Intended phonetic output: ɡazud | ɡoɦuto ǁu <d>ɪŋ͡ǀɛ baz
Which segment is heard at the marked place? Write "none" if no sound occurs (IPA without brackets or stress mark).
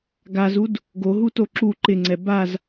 ǃ